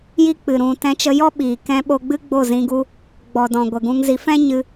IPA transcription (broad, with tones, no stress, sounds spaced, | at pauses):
j i˦ k͡p ɨ˨ ɾ ũ˨ t ɛ̃˧ t͡ʃ ə˧ j ɔ˦ ɓ iː˨ k ɛ̃˧ ɓ o˧ ɡ͡b ɨ˦ ɡ͡b o˦˨ z ĩ˧ ɡ u˦ | ɡ͡b ɔ˨ d ɔ̃˨ ɡʷ ə˨ ɡ ũ˧ ŋ z i˧ f ɛ̃˦ ɲ ɨ˧